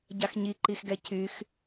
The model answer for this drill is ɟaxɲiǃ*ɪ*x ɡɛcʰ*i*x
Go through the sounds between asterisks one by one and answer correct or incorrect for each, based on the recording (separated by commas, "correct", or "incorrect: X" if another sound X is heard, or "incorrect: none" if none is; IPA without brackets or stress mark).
incorrect: i, incorrect: y